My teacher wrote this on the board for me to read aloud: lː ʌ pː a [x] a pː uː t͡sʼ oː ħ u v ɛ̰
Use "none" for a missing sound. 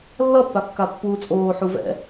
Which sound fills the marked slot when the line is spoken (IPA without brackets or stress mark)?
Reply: kː